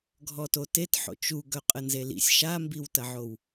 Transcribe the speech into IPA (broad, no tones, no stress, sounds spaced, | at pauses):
ɡʱ ɔ t o t e t ħ o̰ t͡ʃ u ɡ œ qʼ ə n z e l ḭ sʲ ʃ a m b i w t ɐ ʕ o w